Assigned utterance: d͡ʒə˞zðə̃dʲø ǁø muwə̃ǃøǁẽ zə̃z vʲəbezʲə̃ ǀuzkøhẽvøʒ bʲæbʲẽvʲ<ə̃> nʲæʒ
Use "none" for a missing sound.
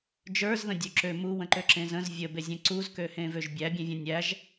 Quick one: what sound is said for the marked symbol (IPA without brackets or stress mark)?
ə̃